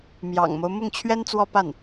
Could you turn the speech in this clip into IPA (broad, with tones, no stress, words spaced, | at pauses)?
mjɑ̰˨˩ŋmo˦ʊ̯ mʊ˥˩ŋt͡ɕʰɥɛ˥nt͡swɔ˥˧pa˥˩n